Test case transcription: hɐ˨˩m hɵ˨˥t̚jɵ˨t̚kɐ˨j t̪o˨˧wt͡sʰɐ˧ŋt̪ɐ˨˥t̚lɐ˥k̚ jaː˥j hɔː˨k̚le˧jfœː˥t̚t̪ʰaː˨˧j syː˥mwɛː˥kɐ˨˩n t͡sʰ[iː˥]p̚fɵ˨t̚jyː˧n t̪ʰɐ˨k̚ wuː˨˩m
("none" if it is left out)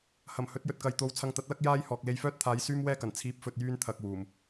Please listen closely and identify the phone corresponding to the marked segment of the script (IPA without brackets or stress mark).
iː˨˥